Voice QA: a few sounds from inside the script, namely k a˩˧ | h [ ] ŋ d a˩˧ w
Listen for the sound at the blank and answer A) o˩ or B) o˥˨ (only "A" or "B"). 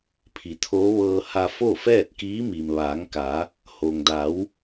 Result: A